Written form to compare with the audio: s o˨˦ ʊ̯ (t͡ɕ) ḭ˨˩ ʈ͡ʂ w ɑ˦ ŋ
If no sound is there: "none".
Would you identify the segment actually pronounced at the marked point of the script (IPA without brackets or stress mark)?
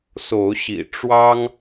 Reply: ɕ